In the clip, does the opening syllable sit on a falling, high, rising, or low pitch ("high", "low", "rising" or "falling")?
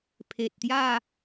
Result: low